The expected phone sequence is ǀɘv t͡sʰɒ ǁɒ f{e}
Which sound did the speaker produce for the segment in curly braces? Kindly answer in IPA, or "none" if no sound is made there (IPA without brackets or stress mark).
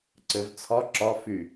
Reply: y